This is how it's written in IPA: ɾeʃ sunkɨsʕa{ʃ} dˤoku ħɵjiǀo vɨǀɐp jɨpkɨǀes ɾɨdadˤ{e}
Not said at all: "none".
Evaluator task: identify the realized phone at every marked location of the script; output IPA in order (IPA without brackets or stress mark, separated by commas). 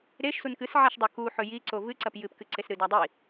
ʃ, i